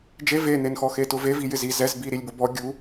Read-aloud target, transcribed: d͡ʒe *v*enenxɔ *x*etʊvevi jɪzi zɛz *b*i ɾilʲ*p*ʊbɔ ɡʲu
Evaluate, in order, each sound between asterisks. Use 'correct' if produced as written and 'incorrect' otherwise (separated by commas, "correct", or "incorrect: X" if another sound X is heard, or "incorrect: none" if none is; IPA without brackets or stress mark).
correct, correct, correct, incorrect: b